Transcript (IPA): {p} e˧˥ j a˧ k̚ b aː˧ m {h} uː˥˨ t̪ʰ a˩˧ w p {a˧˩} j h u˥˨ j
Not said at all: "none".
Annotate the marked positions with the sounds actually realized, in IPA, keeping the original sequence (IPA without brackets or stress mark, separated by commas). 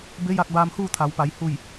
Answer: b, h, a˩˧